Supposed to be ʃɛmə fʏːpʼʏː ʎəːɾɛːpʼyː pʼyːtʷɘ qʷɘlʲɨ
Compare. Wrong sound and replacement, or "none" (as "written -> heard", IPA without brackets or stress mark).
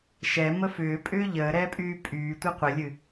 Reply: none